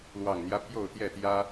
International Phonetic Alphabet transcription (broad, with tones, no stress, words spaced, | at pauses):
lwɑ˨˩ŋn̪jä˦ pʰjo˥˨ʊ̯t̪jɛ˥˨ t̪jä˦